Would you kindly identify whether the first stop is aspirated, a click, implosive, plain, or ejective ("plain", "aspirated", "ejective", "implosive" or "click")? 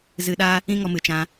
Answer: implosive